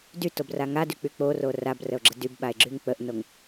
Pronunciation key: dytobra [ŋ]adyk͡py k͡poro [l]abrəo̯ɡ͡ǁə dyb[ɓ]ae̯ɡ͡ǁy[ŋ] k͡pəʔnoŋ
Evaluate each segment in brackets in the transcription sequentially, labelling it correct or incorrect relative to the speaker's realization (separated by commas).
correct, incorrect, correct, correct